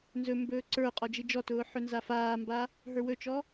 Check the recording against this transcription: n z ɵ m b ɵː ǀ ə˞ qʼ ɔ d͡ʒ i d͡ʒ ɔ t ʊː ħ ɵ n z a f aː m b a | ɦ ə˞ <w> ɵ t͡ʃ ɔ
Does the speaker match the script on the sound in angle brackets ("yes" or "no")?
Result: yes